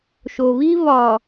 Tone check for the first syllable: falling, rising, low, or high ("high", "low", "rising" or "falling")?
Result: low